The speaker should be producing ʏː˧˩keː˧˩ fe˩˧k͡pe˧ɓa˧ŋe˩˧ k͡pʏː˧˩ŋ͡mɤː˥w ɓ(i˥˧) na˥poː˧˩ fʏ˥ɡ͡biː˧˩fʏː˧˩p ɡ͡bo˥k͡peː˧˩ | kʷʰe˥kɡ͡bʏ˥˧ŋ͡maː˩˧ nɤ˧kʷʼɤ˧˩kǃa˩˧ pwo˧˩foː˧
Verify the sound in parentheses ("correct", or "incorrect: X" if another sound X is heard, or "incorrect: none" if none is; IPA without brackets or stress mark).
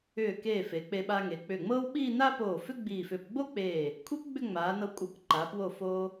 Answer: incorrect: iː˥˧